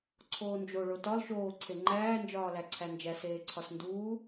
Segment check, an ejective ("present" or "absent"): absent